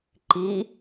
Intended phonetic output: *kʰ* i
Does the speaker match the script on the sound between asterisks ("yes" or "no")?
no